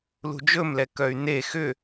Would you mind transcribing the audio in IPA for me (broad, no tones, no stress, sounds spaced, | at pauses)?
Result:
l ṳ d͡ʒ ɵ m l ɛ k œ y̯ n e x ʏ